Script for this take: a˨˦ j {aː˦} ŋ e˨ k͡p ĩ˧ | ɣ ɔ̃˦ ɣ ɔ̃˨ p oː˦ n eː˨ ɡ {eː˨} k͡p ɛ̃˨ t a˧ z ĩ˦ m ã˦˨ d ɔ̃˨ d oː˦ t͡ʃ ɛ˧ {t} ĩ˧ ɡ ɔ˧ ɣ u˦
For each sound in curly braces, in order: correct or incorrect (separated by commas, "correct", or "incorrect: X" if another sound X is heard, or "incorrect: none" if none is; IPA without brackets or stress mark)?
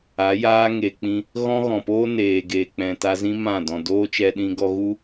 correct, correct, incorrect: ɗ